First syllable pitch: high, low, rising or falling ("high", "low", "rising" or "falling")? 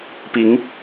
rising